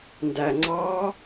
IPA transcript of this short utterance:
n d æ ŋ͡ǀ ɑ

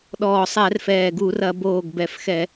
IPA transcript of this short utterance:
ɗ ɔː˨˩ sˤ ɛ˧˩˧ r f ɛː˨˩ ɡ u˧˩˧ r ɐ˧˩˧ b oː˨˩ ɡ b ɛ˨˩ f x ɛ˧˩˧

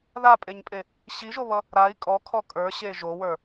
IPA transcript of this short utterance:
ð a pʼ e ɲ pʼ e | ɕ i ʒ o β ʌ | ɾ a i̯ kʼ ɔ kʰ ɔ kʼ ə˞ ɕ e ʒ o w ə˞

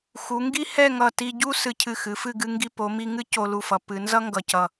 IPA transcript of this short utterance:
x u˩˧ ŋ ɡ i˥ h ɛ˥˧ ŋ ʌ˧˩ t i˧ ɟ u˥ s ɨ˧ cʰ ɨ˧˩ x ɨ˩˧ f ɨ˥˧ ɡ ɨ˧ ŋ ɡ i˧ p o˩˧ m i˧ ŋ ɨ˥ c o˧ l u˧ f ʌ˩˧ p ɨ˩˧ n z ʌ˥ ŋ ɡ ʌ˧˩ c ʌ˧˩

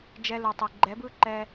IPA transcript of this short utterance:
d͡ʒ ɛ˧ l ɯ˨ tˤ e˨ ɡ͡ǃ ɛ˨˦ b ɯ˦ ǃ ɛ˧

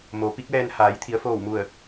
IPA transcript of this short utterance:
m o˩˧ p i˧˥ k̚ ʋ ɛː˧ n h aː˩˧ j t̪ʰ i˩˧ ə̯ f oː˧˩ w m u˧˩ ə̯

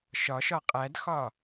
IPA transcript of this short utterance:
ʃ ɒ ʃ ɒ qʼ æ d x ɒ

